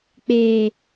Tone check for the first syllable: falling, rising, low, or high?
low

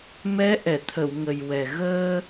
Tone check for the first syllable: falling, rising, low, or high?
rising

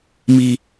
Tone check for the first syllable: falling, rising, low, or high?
high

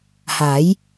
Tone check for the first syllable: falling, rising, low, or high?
rising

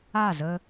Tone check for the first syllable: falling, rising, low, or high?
falling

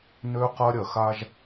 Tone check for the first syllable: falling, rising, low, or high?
high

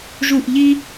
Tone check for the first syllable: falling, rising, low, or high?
falling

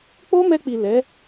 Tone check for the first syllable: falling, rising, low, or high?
high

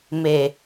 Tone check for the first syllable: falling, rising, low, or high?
low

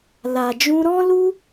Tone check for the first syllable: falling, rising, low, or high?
low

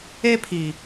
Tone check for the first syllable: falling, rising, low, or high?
high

